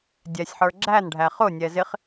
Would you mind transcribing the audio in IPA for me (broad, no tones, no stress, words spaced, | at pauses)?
dʲɛsʲħə˞ ɡ͡ǁænɖʱæ χʊnʲɛ zɪχ